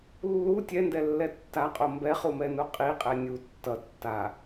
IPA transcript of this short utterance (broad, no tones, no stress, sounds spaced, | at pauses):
lː u tʲ ɛ n d ɛ lː ɛ tː a qʼ o m b ɛ χ u m ɛ n u qʼ i qʼ ɛ nʲ u tː ʌ tː a